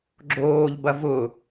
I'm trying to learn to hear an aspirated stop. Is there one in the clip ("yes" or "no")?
no